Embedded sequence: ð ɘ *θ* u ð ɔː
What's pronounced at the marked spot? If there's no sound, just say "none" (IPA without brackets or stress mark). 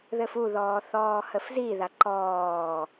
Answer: f